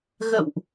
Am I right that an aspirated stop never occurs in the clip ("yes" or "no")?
yes